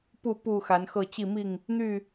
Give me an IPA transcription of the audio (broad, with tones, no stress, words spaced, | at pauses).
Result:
pu˥˨ pu˥˨ xa˨˦nxɤ˥˨ t͡ɕi˥˨mi˥˨ŋ | n̪y˥˨